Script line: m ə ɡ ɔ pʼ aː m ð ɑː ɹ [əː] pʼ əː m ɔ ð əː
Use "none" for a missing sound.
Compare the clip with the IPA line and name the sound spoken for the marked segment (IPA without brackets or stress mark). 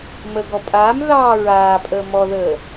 aː